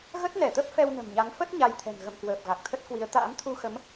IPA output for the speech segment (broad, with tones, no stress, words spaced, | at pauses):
ɣə˦˥t̚nɛ˧˩t̪ə˦˥p̚ fɛ˧wnə̤˨˩mɲa˨˦ŋ fə˦˥t̚ ɲa˧jt̪ʰɛ̤˨˩n ɣə̰˧˨mkwəː˨˩p̚ ɣa˨˩k̚t̪ʰə˦˥t̚kwi˨˦ə̯ t̪a̰ː˧˥mt̪ʰu˧xə˨˦m